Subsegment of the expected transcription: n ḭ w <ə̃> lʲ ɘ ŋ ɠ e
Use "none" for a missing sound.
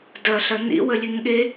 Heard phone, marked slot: ə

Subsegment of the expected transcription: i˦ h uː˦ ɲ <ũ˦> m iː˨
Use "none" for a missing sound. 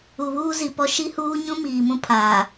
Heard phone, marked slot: ũ˦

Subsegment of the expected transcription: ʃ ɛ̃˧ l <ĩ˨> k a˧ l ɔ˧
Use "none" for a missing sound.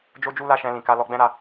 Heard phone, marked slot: ĩ˨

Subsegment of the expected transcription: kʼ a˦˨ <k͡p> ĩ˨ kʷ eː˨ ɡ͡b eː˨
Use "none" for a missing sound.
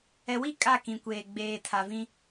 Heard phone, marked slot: k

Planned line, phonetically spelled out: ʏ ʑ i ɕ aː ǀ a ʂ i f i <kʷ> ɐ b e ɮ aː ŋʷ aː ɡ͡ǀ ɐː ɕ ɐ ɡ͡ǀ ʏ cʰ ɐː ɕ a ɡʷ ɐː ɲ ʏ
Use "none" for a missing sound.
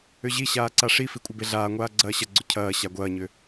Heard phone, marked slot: kʷʼ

